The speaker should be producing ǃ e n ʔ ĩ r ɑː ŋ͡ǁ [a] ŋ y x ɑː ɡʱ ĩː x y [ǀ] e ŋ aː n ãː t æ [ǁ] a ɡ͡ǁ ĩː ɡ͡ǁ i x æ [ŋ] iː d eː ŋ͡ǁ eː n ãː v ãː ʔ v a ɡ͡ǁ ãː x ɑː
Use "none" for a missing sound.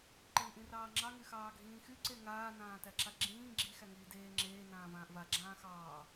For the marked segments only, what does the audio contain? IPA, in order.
ɑ, ǀ, ǁ, ŋ

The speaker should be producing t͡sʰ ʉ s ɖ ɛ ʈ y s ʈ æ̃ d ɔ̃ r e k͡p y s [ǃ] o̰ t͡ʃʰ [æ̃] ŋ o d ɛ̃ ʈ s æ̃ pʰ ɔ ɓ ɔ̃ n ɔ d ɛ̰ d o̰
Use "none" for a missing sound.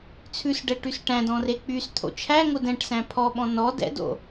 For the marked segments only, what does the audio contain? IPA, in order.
t̪ʰ, æ

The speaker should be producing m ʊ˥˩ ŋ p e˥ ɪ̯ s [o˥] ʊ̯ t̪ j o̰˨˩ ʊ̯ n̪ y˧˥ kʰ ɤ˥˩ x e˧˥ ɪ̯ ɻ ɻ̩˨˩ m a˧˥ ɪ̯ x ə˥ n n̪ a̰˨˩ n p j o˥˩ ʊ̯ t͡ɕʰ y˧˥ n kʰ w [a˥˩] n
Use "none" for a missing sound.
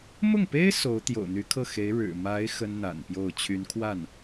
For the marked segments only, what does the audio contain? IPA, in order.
o˧˥, a˥˩

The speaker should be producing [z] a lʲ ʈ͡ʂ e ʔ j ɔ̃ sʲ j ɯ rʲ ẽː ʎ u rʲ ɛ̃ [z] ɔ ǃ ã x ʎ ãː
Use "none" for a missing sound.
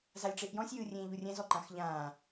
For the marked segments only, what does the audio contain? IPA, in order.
z, z

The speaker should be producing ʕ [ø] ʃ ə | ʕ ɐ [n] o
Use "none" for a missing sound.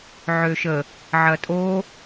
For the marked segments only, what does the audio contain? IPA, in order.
ø, tʼ

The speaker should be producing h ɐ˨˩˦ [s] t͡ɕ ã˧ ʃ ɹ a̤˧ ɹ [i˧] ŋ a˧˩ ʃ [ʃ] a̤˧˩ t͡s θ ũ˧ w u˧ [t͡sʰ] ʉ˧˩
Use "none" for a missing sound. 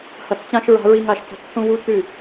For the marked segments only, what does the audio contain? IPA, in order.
t͡s, i˧, t͡s, t͡s

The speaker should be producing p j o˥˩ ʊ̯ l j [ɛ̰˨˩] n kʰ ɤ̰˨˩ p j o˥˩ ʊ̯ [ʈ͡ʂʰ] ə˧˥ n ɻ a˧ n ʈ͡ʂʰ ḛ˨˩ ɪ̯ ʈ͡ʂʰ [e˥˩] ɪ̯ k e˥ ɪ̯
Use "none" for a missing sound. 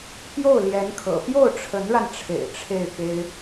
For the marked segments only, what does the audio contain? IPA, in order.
ɛ˧˥, ʈ͡ʂʰ, e˥˩

